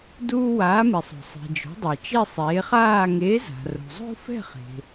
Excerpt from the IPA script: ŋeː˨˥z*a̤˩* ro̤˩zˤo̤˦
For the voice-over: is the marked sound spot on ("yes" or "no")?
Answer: yes